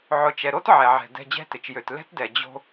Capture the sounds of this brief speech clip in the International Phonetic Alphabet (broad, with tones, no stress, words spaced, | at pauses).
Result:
ʕʊ˨t͡ʃɛ˨ɾo˦t ʕɛ˨ʕɛ̤˨ dɛ̤˨ d͡ʑɛ̤˦tɪ˨t͡ʃjø˨t lɛ̤˦tdɛ˨ d͡ʑo̤˦